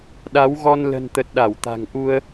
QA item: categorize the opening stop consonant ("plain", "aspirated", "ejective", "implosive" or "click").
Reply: implosive